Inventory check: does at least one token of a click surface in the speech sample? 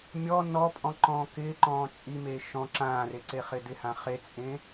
yes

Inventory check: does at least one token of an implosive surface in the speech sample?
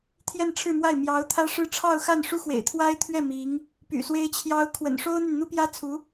no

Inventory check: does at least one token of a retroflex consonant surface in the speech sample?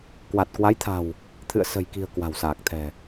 no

